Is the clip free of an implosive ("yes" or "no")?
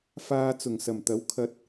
yes